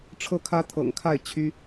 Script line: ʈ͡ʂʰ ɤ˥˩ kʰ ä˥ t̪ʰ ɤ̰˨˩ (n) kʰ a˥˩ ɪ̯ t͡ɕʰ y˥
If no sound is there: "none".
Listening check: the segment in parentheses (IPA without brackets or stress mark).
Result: ŋ